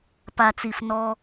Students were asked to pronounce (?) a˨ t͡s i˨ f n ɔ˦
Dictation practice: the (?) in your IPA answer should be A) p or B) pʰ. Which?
A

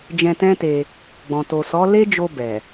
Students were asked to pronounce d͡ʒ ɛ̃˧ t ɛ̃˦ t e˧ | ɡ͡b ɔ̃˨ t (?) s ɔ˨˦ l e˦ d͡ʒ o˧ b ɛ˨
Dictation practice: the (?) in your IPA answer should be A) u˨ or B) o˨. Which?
B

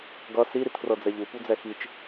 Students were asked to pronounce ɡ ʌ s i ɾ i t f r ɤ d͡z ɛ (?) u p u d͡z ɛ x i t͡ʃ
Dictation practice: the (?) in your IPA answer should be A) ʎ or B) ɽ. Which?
A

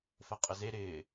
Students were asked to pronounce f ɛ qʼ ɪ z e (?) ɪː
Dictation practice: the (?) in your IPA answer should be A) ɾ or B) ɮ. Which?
A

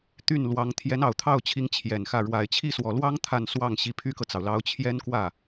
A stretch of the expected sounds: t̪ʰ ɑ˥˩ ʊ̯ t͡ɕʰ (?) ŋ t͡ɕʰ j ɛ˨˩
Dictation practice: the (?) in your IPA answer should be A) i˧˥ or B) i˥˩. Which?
A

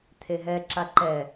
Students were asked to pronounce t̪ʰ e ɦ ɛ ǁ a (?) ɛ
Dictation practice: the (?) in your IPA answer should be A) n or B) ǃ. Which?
B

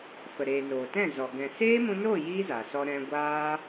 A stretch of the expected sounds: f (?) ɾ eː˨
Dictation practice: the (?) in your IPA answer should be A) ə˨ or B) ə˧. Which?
A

